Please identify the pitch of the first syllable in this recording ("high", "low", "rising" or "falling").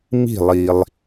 falling